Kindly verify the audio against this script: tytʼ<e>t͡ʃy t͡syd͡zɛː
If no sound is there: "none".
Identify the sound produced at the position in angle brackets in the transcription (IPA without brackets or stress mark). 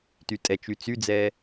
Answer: ɛ